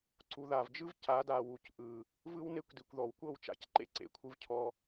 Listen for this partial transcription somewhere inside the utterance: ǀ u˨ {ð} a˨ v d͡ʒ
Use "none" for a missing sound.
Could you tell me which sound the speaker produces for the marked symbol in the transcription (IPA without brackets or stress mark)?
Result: ð